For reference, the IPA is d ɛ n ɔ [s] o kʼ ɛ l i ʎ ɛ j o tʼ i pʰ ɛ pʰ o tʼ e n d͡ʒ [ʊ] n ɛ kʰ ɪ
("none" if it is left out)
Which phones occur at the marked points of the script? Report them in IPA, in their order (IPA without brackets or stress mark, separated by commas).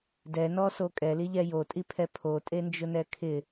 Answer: s, ʊ